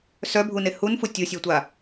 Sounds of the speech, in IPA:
sœbʱune hunfu tʲusʲœtʷa

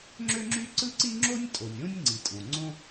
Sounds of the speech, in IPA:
ŋ͡ǁø˥ŋ͡ǁy˥ǀɯ˥ ǀi˥ŋ͡ǁo˥nʲ tʼo˩nʲõ˥nʲ ŋ͡ǀi˩tʼõ˩ŋ͡ǀõ˥

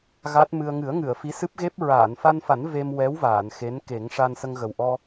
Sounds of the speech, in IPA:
ɣa˦˥t̚mɨ˧ə̯ ŋɨ˨˩˦ə̯ ŋɨ˨˩˨ə̯ fi˧˥sɨ˦˥p̚ɣe˦˥p̚ ɹaː˨˩˨nfa˧nfa˨˩˦n ve˧mwɛ˧˥w vaː˨˩˨nxe˧˥nke˨˩˦ŋ ʂa˧nsə˧ŋɣə˨˩w ʔɔ˧

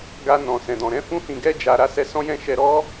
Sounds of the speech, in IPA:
ɡa˧ nɔ̃˨sɛ̃˨dɔ̃˨ ɾɛ̃˨˦fũ˧hĩ˨ɡɛ˧ d͡ʒa˨ ɾa˨˦sɛ˧sɔ̃˦jɛ̃˦˨ ʃɛ˧ɾɔ˦

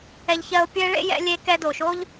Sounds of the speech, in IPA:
ɛ˧ʎçɜ˧o̯pʲɘ˦e̯ɭḛ˦ jɛ̰˧lʲe˧ kɛ˧do˨ʃo˦ʎ

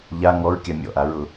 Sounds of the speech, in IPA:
ʎa ŋɔɹkʲa mʲɔ̰ʔaɹʊ

